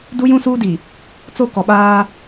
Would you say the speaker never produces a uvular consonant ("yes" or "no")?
yes